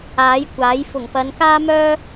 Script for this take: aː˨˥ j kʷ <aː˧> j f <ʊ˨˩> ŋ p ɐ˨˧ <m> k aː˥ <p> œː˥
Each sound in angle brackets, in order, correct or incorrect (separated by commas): incorrect, correct, incorrect, incorrect